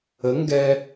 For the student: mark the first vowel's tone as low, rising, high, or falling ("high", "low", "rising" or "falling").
rising